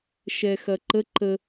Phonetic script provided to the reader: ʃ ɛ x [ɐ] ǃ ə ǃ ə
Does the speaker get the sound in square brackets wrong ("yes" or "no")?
no